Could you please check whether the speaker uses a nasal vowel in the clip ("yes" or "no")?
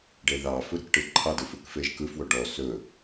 no